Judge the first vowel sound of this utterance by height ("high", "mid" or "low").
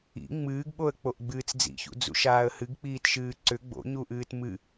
high